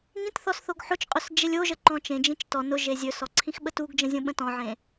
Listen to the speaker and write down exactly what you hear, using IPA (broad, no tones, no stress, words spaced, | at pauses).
ŋĩtθɔs θoɡħot͡ʃqʼɵs d͡ʒelʲoʒə ǃɔ̃t͡ʃẽd͡ʒĩt͡ʃ tɔ nʊʒe zʲɵsɔ ǀʰĩxɓətuɡd͡ʒə̃ zʲõɓə̃tɔ̃ʕẽ